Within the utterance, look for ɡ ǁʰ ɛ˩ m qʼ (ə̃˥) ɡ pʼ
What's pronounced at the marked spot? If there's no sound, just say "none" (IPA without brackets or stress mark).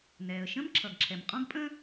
ɔ̃˥